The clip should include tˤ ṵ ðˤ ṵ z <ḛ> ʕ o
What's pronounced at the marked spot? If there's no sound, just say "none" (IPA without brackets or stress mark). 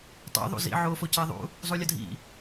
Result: ḭ